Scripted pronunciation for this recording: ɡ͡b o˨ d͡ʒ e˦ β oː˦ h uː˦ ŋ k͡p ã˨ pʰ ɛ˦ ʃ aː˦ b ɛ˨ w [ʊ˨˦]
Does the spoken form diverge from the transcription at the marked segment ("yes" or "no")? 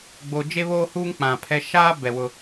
yes